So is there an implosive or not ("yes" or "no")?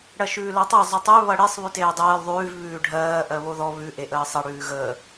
no